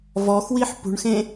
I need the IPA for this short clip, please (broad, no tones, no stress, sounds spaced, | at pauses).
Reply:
v ɔ x w i ħ p ṳ ɳ x ẽ